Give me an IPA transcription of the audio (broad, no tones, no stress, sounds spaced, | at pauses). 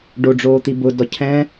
ɖ o ɖ͡ʐ oː t̪ i b ʊ d ɔ cʰ ɛ̃